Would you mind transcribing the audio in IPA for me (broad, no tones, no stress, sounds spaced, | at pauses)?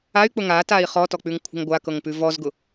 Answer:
a y̯ k͡p ʊ ŋ a t a i̯ χ ɔ t ɔ k͡p ʉ ŋ kʷʰ ə̤ ŋ ɡʷ a k ɤ ŋ p ʉ v ɔ z ɡ ʊ